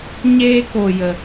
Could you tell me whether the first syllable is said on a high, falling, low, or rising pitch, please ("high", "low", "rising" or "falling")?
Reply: high